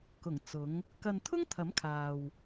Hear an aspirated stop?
yes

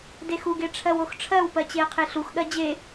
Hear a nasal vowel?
no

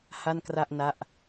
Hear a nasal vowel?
no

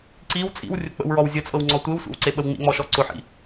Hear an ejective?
yes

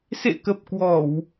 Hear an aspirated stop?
no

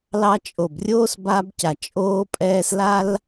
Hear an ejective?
yes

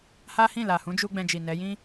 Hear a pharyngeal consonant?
no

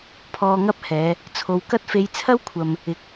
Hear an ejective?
no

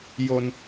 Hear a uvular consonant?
no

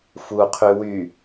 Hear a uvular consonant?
yes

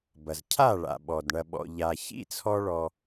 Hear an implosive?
yes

